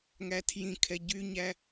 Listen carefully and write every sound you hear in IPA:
ŋ æ tʰ j ĩ kʰ ɛ ɟ y ɲ æ

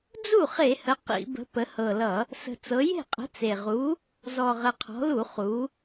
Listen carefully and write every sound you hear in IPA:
d͡z u˥˩ χ e˧˩˧ h ə˩˧ q ḭ˧˩˧ b ə̤˨˥ p ə˩˧ h ɤ˨˩ l ʌ˧˩˧ | s ə̤˨˩ t͡s ɤ˩˧ j e̤˥˩ qʼ ə̤˨˥ t͡s e˨˩ ʁ u˨˥ | z ɔ˨˩ ʁ ə˨˩ qʰ ɔ̤˩˧ l u˧˩˧ χ u˩˧

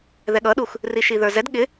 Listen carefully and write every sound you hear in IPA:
ð ɛ ɠ ʌ ɗ u x | r i ʃ i ð ə˞ z ɛ d ɠ ɪ

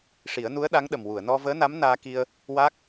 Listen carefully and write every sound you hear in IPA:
ʂ i˨˩˦ ə̯ n u˧˥ ə̯ ɗ a˧˥ ŋ ɗ ə˨˩ m w u˨˩˨ ə̯ n ɔ˧ v əː˧˥ n a˧˥ m n aː˧ k i˧ ə̯ | w aː˦˥ k̚

